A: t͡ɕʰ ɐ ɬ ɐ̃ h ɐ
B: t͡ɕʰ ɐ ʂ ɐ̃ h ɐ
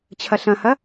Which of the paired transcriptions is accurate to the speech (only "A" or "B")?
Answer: A